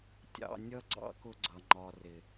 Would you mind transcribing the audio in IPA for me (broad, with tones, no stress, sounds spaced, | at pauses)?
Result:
tʲ ɑ̰˧ nʲ ʌ˦ ɡ͡ǀ ɑ̰˦ k ʊ˧ ɡ͡ǀ ʌ˨ ŋ͡ǃ ɒ˨ r ɪ˨